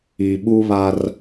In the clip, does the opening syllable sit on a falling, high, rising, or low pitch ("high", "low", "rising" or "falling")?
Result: low